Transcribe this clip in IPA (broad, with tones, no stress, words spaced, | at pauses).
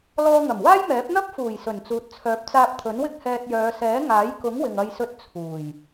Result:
lɔː˧ŋɐ˨˩mwaː˥jmɛː˨˥p̚ n̪ɐ˥p̚fuː˨˩j sɵ˨˩nt͡suː˨t̚ t͡sʰœː˨˥p̚t͡saː˧p̚ t̪ʰɵ˨˥nwɪ˥k̚ hɛː˧t̚jœː˨˧ sɛː˨˥ŋaː˨˥jkʊ˨˥ŋ wɪ˨ŋɐ˧jsɵ˧t̚ t͡sʰuː˨˩j